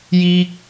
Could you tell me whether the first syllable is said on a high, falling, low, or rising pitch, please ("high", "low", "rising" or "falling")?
high